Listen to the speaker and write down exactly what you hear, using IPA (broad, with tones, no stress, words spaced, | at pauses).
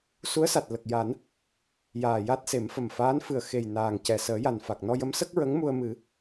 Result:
su˧˥ə̯sa˨˩t̚ lə˨˩k̚ja˨˩˦n | jaː˨˩ja˦˥t̚se˨˩˦m fə˨˩mfaː˧˥n fɨ˨˩ə̯ xe˨˩j naː˨˩ŋcɛ˨˩ səː˨˩˦ja˨˩n fa˨˩k̚nɔ˧jə˧˥m sə˦˥k̚ɹə˧˥ŋ mu˧ə̯mɨ˨˩˦